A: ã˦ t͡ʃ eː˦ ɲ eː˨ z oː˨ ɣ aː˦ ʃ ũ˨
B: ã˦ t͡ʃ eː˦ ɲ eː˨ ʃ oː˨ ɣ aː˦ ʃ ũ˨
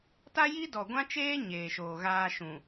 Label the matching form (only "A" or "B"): B